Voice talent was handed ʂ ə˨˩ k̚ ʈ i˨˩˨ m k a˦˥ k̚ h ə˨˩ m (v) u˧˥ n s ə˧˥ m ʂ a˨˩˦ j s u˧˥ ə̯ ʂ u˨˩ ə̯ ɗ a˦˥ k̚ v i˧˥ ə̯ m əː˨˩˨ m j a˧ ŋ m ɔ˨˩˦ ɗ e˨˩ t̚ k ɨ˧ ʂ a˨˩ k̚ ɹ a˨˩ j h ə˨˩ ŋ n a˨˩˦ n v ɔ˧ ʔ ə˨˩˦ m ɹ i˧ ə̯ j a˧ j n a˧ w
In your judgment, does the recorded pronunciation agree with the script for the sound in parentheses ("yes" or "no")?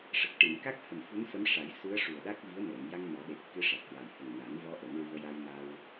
no